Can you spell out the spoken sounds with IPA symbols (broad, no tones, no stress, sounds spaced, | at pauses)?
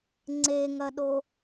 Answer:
ŋ͡ǀ e ŋ ɐ ɗ o